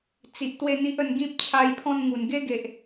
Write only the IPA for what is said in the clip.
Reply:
t͡s i˨ ʔ t̪ w e˥˧ n̪ i˦ ʔ ə˧ n ɡ ĩ˦ p̚ t͡ɕʰ a˧ j pʰ ɔ̃˥˧ n ŋ u˨˩ n ɡ e˦ ɡ e˨ ʔ

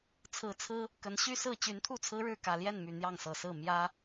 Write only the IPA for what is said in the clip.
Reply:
t͡sʰ ɹ̩˨˦ t͡sʰ ɹ̩˦ | k ə˨˦ n ɕ y˦ s ɹ̩˥˨ t͡ɕ y˨˦ n t̪ʰ u˥˨ t͡sʰ ɹ̩˦ ɻ ɻ̩˥˨ k ä˨˩ l j ɛ˥˨ n m y˨˩ n̪ j ɑ˥˨ ŋ s ɤ˨˩ s ɹ̩˥˨ m j ä˦

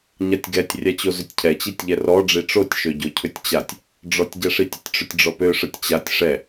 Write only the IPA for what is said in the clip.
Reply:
ɲ a tʲ ɡ ɛ tʲ rʲ a t͡ɕ o z ʏ tʲ cʰ ɛ t͡ɕ i tʲ ʎ ɛ r ɔ ɖ͡ʐ i ʈ͡ʂ o tʲ ʃ ø ɟ o cʰ ʏ tʲ t͡ɕ a tʲ | ɖ͡ʐ ɔ tʲ ɟ ɛ ʂ i tʲ ə tʲ ʈ͡ʂ ʏ tʲ ɖ͡ʐ ɔ p ø ʂ ə tʲ t͡ɕ a tʲ ʂ ɛ

